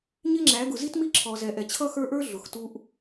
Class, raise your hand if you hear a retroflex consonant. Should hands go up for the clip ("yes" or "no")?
no